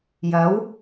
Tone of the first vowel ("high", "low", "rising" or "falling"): rising